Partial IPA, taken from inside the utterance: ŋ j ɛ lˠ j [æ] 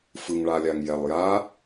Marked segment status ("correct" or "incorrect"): incorrect